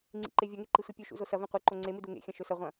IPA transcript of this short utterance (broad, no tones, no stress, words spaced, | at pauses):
ŋ͡ǀḭǃevʲɐŋe ǃisʷipʲʉʃṵ zosɐvẽ qʷɨǃo ŋ͡ǀemɨ duŋḛxʲɐ̃ ʃɵsɐʁʷɐ̃